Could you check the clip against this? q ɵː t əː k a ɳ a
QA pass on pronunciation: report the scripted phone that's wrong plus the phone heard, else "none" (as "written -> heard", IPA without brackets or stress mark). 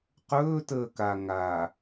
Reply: ɳ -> ŋ